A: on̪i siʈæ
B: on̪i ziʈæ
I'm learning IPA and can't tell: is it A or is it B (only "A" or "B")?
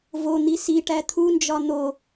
A